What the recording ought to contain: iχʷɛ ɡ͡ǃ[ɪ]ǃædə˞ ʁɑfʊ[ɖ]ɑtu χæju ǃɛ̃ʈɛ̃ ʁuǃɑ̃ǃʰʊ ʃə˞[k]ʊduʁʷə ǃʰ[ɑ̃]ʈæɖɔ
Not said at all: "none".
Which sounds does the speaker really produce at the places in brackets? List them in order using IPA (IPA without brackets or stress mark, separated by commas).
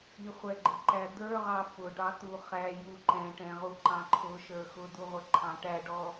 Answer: ɪ, ɖ, x, ɑ̃